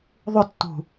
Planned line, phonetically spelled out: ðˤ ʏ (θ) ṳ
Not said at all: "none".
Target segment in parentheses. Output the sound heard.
tː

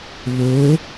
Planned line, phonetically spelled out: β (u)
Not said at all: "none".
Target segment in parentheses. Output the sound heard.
o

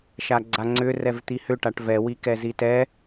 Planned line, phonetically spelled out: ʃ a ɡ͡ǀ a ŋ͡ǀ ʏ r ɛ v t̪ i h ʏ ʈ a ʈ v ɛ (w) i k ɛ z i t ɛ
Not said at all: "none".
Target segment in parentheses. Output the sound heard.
w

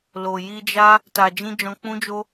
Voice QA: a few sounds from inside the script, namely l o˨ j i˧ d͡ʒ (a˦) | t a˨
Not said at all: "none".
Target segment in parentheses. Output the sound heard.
a˦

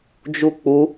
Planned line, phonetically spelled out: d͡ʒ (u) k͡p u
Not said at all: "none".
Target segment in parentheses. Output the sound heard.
u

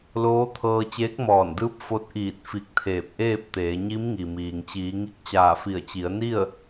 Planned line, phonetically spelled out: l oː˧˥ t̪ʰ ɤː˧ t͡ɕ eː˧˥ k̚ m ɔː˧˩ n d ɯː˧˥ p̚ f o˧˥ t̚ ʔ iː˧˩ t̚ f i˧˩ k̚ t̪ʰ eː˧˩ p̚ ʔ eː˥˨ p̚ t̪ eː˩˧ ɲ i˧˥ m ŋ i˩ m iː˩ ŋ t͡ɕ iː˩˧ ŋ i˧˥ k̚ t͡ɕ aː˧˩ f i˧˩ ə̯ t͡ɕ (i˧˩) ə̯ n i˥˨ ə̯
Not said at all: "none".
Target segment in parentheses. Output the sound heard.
i˩˧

